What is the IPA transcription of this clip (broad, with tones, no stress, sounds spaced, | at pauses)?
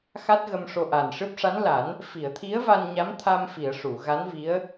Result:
x a˦˥ t̚ ɣ ə˧ m ʂ o˧ ʔ a˨˩ n ʂ ɨ˦˥ p̚ ʂ a˧˥ n l a˨˩˦ n | f i˨˩˨ ə̯ t̪ʰ i˧˥ ə̯ v a˧ n ɲ a˧˥ m t̪ʰ a˧ m f i˨˩˨ ə̯ ʂ u˨˩˨ ɣ a˧˥ n v i˧˥ ə̯